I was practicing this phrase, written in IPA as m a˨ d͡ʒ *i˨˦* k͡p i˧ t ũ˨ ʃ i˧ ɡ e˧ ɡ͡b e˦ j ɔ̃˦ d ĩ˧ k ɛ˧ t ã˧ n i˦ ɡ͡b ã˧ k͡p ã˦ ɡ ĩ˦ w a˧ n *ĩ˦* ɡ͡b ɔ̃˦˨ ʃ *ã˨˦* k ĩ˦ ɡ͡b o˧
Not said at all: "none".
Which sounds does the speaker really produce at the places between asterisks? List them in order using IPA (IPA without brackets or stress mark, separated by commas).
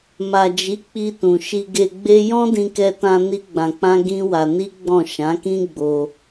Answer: i˨˦, i˦, ã˨˦